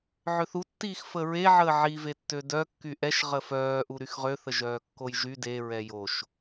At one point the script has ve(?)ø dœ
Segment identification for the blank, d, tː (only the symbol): tː